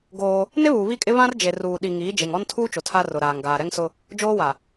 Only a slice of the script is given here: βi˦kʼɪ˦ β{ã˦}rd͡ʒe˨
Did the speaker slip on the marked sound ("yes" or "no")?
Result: no